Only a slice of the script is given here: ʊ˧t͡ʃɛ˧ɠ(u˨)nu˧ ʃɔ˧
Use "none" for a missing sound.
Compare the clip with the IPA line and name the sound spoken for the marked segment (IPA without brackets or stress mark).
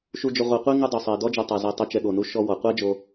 o˨